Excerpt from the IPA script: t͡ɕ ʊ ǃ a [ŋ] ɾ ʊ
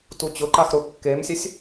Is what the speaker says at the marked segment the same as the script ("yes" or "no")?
no